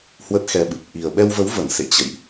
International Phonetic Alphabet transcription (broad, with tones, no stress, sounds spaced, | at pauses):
h w ə˦˥ t̚ x ɛ˧ ɓ ɨ˨˩ p̚ ʔ i˨˩ ə̯ ɓ ɛ˧ w v ə˨˦ w v ə˧˩ n s ḛ˧˨ t͡ɕ ə̰˧˨ j ʔ